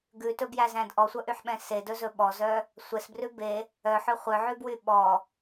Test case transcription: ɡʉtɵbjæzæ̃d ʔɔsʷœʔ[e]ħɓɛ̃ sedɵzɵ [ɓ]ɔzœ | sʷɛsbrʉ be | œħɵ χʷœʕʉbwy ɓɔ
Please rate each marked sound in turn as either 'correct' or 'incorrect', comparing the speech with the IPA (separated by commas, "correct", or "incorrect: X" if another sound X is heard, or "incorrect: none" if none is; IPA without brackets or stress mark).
incorrect: y, correct